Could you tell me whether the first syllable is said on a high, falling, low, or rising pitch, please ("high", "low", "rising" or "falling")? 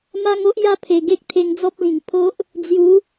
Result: high